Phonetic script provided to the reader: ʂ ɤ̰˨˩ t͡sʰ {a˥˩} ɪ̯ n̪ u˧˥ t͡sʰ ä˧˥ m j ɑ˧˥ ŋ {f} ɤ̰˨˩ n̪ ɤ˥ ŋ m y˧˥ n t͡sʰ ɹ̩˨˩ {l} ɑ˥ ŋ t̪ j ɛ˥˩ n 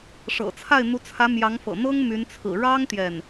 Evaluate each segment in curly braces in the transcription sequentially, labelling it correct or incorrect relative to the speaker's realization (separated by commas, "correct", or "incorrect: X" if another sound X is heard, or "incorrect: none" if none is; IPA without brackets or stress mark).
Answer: correct, correct, incorrect: ɻ